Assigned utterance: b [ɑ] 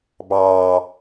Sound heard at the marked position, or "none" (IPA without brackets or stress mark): ɑː